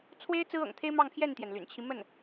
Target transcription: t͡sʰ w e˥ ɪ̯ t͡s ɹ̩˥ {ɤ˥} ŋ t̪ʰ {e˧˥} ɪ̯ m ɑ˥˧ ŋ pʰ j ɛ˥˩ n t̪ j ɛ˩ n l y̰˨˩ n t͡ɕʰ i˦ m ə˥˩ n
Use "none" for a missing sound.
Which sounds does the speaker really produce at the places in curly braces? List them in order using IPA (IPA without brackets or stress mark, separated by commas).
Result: ɤ̰˨˩, e˥